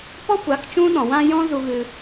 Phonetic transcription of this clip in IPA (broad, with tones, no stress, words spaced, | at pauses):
pɔ˦kʷa˨˦k t͡ʃũ˦ɗɔ̃˨wã˦ jɔ̃˦zu˧ ɣɨ˧